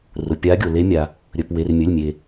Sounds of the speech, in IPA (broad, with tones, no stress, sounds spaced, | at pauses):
r ʊ˩ pʲ a˨˦ ɡʲ o˩ l e˨˦ mʲ a˩ | ɾʲ ɵ˩˧˩ p w e˩˧˩ r mʲ ɵ˩˧˩ lʲ mʲ e˩